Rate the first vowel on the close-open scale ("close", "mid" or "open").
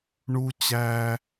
close